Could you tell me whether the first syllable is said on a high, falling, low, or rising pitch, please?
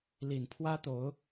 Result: low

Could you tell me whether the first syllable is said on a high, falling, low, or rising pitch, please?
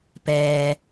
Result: low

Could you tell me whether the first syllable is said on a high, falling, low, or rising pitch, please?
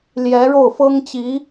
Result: rising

